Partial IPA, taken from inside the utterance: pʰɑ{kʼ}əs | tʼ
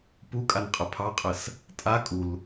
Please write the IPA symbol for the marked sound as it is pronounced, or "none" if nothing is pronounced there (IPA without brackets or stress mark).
qʼ